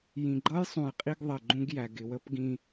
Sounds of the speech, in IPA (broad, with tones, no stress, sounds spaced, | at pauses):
j ĩ˨ ɡ͡ǃ ʌ˦ j sˤ ũ˨ j qʼ i˦ ɡ ðˤ ɜ˨ ɡ͡ǃ ũ˦ ɡ j æ˨ ɡ ɪ˨ w ə˦ p ɡ ĩ˦